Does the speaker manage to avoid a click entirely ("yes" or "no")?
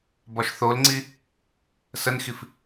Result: no